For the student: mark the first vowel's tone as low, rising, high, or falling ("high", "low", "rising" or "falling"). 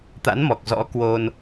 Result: rising